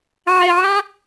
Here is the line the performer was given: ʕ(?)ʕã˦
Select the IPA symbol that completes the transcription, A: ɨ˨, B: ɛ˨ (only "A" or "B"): B